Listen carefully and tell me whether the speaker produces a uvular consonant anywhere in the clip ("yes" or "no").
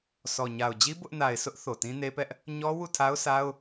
no